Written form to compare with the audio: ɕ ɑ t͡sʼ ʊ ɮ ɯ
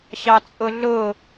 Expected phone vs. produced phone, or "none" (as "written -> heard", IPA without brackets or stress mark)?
ɯ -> ʊ